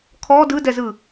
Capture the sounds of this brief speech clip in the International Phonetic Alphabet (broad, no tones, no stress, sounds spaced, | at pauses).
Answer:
kʰ ɔ d ɯ d ɛ z ɯ